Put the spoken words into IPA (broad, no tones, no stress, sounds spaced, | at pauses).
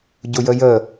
ɟ ʊ j ə j ə